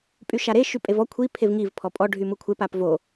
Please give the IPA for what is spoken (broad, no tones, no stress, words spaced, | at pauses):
pʼyʃaɾe ʃypʼevɔ kʷʰi pʰevŋiv pʰɔpʼɔ ɖʱymukʷʰep apvo